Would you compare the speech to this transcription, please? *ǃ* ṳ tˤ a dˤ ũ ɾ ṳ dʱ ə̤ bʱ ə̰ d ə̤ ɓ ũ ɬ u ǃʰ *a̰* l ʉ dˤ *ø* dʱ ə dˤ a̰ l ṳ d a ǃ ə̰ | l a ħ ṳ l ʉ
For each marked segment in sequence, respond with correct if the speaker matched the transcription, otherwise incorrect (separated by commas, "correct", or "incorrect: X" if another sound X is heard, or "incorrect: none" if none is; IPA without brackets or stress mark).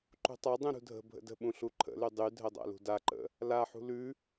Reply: correct, incorrect: ə̰, incorrect: y